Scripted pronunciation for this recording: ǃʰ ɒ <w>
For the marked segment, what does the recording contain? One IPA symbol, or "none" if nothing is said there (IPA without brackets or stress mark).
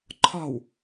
w